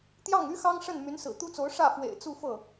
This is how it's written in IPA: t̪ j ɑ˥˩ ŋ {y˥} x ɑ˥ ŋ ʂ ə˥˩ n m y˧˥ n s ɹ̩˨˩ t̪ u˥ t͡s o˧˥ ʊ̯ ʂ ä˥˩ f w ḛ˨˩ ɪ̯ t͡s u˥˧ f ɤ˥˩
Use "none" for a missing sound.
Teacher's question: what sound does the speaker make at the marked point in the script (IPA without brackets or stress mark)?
y˥